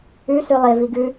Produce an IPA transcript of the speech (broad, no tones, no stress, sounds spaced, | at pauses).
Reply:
ʉ s ʉ lˠ e v i ɡ ʉ